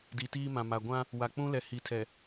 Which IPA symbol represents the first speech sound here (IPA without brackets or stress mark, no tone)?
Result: d